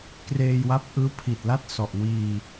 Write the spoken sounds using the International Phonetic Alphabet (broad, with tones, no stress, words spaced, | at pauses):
kreː˧jwa˦˥p̚ ʔɯː˦˥pʰi˨˩t̚la˥˩t̚ sɔ˨˩ʔ wiː˧